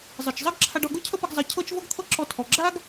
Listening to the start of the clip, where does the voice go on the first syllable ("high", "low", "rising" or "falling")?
low